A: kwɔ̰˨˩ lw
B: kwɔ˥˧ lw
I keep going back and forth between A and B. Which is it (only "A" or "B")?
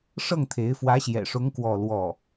B